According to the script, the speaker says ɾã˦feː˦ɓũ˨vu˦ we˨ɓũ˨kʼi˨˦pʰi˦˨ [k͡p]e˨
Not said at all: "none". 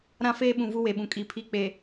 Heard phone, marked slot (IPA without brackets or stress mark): k͡p